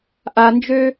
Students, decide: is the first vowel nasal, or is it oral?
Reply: oral